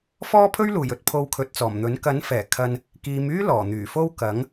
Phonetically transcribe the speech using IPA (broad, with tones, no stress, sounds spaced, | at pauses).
f ɔː˥ pʰ ɵ˥ ɥ l uː˨˩ j ɵ˨ t̚ pʰ o˧ w kʰ ɵ˨˥ t̚ t͡s ɔː˨˩ m n̪ ɵ˨˥ n k ɐ˨˥ n f ɛː˨˩ kʰ ɐ˧ n | k iː˨˧ m yː˥ l ɔː˨˩ n̪ yː˨˩ f o˥ w k ɐ˨˥ ŋ